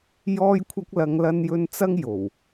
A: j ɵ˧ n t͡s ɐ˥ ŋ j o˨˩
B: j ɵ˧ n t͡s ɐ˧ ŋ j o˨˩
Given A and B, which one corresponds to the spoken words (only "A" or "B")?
A